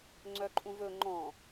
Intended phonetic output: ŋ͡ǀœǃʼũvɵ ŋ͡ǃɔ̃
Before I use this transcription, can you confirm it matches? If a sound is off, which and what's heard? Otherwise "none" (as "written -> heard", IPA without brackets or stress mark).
none